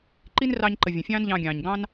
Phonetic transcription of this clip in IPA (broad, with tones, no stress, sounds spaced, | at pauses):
ǃ i˦ n r ɑ˧ ɲ ǃ ə˨ vʲ ə̃˨ fʲ ɑ̃ː˦ n ʎ ɑ̃˧ ɡʲ ɑ̃ː˨ ɲ ɡ ɑ̃˦ n